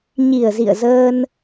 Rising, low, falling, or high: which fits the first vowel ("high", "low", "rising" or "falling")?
low